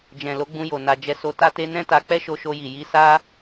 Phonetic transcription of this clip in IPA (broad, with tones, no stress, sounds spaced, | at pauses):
d͡ʒ ɛ̃˨ l o˨˦ ɡ͡b ũ˧ j o˨ n a˨ d͡ʒ ɛ˨˦ s o˧ t a˦ t e˦ n ɛ̃˦ t a˧ k͡p ɛ˦ ʃ o˧ ʃ o˧ j i˨ j i˧ s a˦